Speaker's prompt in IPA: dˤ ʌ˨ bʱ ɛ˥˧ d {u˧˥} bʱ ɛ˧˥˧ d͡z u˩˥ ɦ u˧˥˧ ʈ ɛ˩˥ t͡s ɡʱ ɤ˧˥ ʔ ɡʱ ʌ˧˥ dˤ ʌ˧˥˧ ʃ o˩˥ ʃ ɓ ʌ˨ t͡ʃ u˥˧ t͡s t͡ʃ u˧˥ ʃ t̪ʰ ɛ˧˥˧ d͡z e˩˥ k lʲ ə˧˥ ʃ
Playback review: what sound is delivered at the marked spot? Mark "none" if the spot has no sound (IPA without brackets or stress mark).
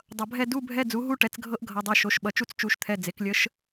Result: u˧˥˧